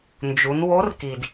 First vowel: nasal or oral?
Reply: oral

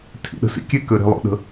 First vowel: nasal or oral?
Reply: oral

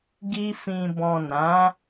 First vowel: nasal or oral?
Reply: oral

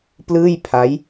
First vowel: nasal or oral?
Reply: oral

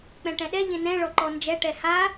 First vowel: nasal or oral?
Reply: nasal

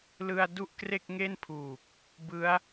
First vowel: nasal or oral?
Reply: oral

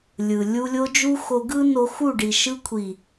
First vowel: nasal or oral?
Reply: oral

